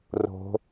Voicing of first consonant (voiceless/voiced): voiced